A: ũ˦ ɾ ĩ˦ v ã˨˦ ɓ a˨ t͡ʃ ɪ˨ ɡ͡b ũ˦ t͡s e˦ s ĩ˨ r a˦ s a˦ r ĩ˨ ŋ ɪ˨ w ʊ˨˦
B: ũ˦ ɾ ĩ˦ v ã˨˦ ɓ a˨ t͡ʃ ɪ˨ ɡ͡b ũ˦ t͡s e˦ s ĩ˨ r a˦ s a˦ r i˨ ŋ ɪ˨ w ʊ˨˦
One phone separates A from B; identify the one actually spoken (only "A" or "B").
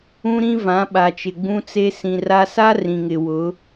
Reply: A